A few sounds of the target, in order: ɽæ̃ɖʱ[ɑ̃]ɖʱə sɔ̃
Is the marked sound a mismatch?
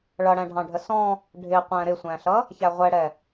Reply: no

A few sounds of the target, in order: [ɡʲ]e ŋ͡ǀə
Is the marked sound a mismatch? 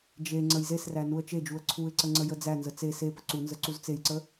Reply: yes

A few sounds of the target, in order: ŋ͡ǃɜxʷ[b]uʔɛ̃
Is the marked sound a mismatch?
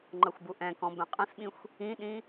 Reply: no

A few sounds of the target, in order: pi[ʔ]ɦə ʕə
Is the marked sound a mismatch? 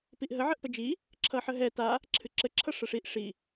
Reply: no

